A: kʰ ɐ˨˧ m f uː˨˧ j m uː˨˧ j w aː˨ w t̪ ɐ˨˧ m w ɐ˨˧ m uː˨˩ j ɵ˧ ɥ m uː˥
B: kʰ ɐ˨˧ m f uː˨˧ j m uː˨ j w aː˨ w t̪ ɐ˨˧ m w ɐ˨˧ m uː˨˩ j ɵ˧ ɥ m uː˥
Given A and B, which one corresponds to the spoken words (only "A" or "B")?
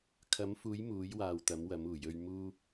A